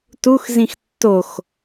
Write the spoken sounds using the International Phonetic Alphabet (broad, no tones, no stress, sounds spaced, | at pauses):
t u x z ĩ x tː o x